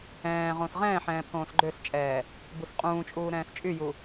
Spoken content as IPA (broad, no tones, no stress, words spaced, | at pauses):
ɛ̃ː ʁõːsʁɛ̃ːħɛ̃ː pʰõːsɡ͡ǃøst͡ʃʼɛː | busqʼũːt͡ʃʼuː ɾɛ̃ːst͡ʃʼyju